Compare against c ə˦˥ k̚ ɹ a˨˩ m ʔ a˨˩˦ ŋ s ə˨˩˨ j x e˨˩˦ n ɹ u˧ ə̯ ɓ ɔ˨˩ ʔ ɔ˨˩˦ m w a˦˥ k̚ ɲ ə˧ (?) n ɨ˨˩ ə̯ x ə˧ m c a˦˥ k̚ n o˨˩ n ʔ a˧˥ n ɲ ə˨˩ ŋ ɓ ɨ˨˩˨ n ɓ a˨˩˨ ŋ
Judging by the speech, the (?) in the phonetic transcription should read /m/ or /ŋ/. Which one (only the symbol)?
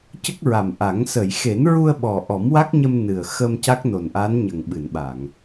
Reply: m